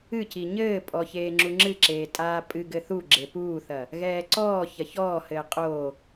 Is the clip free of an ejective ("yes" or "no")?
no